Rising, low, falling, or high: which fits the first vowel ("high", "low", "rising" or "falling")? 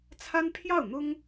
high